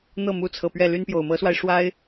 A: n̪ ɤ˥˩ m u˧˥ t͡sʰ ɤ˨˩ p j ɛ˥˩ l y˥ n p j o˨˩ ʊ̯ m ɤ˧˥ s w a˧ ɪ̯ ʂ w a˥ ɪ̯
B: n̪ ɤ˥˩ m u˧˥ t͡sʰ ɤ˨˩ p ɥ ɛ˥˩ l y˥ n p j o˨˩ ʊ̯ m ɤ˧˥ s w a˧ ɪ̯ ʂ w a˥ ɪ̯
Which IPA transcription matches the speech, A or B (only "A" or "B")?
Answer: B